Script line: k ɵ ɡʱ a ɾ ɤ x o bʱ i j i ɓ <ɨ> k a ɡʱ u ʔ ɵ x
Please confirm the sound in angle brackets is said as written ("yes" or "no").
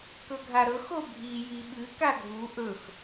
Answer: yes